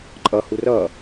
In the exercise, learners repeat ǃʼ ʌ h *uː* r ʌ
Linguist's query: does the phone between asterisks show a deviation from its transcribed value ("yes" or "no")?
yes